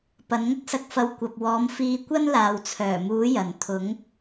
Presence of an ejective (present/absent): absent